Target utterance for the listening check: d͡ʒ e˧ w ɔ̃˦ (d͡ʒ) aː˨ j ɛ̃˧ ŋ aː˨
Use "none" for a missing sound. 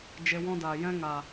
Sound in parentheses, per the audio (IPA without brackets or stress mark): d